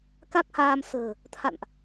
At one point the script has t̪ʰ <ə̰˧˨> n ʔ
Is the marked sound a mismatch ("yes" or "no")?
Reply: yes